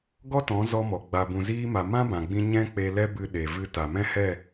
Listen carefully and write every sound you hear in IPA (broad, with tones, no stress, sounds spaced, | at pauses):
ɡ ɔ˦ t ɔ̃˨˦ z ɔ˧ m ɔ˨ ɡ͡b a˨ b ũ˨ z iː˧ m a˨ m ã˦ b ã˨ ɡ͡b ĩ˧ ɲ ɛ̃˦ k͡p e˧ l ɛ˦ b ɨ˧ ɗ e˨ v ɨ˦ t a˨ m ɛ̃˦ h ɛ˦˨